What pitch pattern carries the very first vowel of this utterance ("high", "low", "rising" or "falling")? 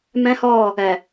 high